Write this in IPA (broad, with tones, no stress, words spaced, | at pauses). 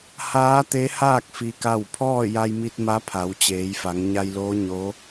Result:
haː˧˥t̪e˧˥haː˥˨k̚ fi˧ka˥˨w pʰɔː˥˨ja˧jmi˧t̚ ma˧˥pʰa˩˧wt͡ɕeː˩˧jfa˩˧ŋ ɲa˧jloː˧˥ ɲo˧˥